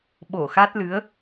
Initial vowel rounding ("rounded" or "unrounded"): rounded